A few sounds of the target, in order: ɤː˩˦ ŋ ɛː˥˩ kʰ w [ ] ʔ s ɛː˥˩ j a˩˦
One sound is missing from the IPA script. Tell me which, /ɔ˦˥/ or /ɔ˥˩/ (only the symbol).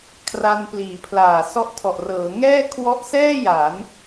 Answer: ɔ˦˥